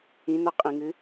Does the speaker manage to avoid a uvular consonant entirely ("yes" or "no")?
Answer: no